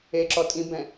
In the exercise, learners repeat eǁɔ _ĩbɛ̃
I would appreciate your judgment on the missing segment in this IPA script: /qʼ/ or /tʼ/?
tʼ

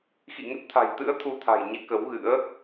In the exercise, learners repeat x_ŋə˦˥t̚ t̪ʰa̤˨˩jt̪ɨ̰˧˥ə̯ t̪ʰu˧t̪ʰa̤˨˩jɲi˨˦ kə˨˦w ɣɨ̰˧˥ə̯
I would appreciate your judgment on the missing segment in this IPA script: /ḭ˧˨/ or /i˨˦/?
ḭ˧˨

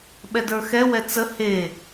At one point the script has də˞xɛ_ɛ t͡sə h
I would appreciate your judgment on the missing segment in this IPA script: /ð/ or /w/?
w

